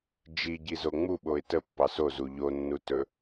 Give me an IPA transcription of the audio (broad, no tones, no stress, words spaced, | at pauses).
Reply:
d͡ʒiɟizo ŋ͡muɓoɪ̯ təpːɑs ozu ʎonːutɵ